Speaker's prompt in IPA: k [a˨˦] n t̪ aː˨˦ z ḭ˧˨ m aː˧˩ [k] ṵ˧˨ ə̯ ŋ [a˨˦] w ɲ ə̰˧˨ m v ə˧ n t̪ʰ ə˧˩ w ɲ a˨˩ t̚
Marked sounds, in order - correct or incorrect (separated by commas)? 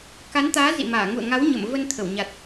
correct, incorrect, correct